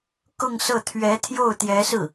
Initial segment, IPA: k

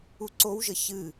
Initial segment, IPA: u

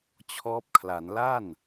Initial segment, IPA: t͡ɕʰ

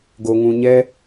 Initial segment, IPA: ɡ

